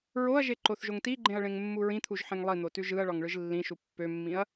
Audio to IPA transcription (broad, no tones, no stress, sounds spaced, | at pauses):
ɹ o ɐ̯ ʒ e ǃ o θ ʒ o ŋ t i ɡ͡ǃ ẽ ɐ̯ ɭ ẽ ŋ mː u ɹ ĩ t̪ʰ u ʒ ħ ẽ ŋ lˠ i n̪ o t ʉ ʒ ɯ ɐ̯ ɭ ɒ ŋ ɭ ɯ ʒ lː ĩ ʃ u pː ø mː ĩ ɐ̯